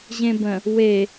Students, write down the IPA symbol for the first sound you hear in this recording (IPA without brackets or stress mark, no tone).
ʑ